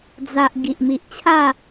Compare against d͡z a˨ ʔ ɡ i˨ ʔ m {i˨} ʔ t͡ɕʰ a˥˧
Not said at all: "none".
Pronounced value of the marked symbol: i˨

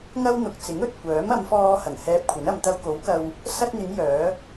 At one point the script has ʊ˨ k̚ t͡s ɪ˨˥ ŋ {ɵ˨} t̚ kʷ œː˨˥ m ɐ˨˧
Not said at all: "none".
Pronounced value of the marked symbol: ɵ˨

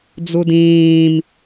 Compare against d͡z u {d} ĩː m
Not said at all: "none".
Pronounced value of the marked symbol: d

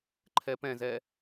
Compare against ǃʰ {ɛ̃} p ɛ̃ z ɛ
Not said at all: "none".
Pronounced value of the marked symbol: ɛ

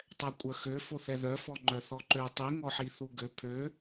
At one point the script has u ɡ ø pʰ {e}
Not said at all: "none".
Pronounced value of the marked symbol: ø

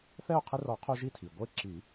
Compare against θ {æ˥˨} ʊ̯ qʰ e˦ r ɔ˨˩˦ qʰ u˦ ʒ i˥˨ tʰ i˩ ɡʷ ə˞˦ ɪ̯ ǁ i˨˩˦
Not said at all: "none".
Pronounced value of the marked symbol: ɛ˥˨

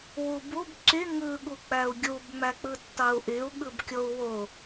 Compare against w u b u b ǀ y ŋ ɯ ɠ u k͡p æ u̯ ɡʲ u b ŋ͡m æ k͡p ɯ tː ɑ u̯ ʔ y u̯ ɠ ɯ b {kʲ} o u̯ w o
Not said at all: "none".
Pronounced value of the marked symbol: kʲ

